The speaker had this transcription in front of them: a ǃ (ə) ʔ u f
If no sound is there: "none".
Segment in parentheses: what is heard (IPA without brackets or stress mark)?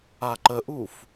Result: ə